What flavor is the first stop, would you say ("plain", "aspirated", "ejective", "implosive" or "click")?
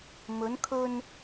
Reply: aspirated